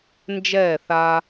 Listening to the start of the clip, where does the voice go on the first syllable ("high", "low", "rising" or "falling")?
falling